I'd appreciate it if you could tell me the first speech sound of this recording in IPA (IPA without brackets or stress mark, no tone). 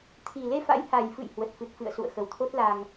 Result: t̪ʰ